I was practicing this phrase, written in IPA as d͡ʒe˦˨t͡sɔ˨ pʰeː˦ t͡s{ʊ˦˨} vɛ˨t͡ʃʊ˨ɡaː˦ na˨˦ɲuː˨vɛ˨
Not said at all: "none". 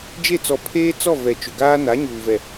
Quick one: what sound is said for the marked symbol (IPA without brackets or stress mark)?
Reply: ɔ˦˨